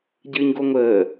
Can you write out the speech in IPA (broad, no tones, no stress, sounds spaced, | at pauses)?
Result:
ɟ ɨː ɲ ɡ o ŋʷ əː